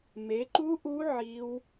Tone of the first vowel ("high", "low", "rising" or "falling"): rising